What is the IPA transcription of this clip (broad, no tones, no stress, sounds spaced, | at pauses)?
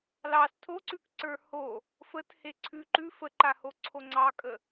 l ɑ s tʰ o ǀ ʉ k ǀ ə˞ h o | f ə t h e ǀʰ ʉ ǃ ʉ f ə ǃ a h o ǀʰ o ŋ͡ǀ ɑ kʼ ə